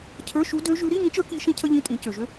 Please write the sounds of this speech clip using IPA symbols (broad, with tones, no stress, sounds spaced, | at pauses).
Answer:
cʰ ə˞˧˥˧ ʃ u˧˥ d ø˧˥ ʒ ʉ˧˥ ɾ i˧˥˧ ŋ ĩ˧˥ t͡ʃ ə˞˧˥ k i˧˥ ʃ ĩ˥ cʰ ə˥ ʎ ĩ˧˥˧ tʼ ĩ˩˥ c ø˩ ʒ ø˥